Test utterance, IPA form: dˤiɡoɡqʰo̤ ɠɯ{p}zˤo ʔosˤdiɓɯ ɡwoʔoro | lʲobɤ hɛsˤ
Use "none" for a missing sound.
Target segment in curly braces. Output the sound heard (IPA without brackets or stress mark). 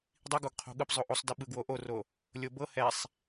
p